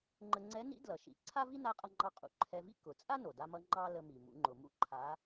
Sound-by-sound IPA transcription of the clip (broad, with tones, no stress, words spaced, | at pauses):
ŋ͡ǃə˧ŋ͡ǀɛ˧˥nḭ˧˥ dlʌ˩ ʃḭ˩˧ ǀʰa˥vi˥ na˧˥qʼʌ˧ŋ͡ǃɑ˧ qʼṵ˩ ǃʰɛ˧vḭ˥ kʊ˩˧ t͡sʼa˥no˩da˧mʌ˧ ŋ͡ǃɑ˥lə˧mi˩ mṵ˩˧ŋ͡ǃʊ˩mṵ˥ ǃʰa˧˥